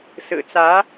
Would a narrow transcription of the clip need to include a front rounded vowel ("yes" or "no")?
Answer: no